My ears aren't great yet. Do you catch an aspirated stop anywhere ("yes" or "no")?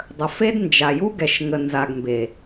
no